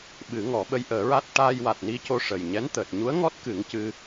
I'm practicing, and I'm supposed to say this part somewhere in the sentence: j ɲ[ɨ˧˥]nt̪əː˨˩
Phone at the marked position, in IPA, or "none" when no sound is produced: ɛ˧˥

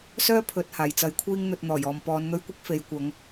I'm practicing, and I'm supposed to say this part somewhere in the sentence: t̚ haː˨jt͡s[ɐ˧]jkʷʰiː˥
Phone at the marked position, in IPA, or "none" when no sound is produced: ɐ˧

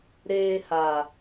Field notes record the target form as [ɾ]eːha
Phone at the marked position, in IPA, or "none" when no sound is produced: ɾ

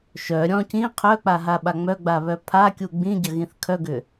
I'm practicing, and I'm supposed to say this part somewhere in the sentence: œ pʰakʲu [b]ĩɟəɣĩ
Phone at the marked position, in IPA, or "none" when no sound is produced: ɡ͡b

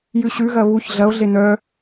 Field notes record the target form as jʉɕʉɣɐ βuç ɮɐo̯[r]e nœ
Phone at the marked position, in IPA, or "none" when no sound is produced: ɮ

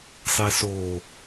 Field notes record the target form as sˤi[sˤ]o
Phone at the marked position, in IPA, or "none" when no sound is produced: s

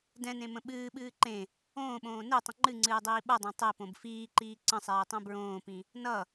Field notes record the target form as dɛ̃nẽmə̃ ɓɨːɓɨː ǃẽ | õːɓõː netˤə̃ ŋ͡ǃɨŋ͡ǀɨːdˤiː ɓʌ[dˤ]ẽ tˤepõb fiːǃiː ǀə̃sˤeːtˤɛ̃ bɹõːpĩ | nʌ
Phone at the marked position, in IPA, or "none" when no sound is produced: dˤ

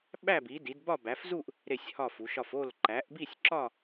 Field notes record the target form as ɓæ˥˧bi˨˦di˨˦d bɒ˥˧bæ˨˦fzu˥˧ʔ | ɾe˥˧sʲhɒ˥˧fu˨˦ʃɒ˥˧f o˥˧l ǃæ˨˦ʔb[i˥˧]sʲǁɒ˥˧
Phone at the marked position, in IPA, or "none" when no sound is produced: i˥˧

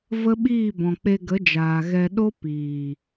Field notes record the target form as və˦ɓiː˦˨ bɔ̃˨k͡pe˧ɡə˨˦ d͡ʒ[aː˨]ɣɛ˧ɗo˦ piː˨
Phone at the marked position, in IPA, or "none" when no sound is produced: aː˨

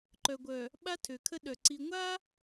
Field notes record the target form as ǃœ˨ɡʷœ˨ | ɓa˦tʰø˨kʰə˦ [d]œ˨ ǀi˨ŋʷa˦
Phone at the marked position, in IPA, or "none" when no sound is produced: ɗ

